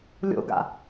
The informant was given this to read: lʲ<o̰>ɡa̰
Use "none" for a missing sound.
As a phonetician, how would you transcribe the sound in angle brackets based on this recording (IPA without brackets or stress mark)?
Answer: o̰